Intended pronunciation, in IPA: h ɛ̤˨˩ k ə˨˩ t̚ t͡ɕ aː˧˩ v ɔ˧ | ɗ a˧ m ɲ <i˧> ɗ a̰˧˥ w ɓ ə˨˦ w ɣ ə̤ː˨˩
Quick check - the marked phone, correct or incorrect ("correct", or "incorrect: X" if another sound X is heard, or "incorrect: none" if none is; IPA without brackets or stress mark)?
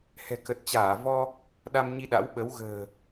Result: correct